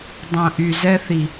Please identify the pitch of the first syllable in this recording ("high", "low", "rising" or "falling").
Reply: low